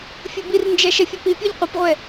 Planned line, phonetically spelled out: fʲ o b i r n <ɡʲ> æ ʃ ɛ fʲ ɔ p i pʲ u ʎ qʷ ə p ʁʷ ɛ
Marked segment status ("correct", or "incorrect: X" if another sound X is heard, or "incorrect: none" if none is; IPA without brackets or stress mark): incorrect: d͡ʒ